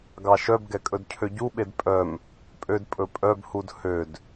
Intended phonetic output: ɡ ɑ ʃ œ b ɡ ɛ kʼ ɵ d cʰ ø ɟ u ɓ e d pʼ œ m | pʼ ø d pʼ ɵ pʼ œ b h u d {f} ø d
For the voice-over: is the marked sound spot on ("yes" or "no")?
no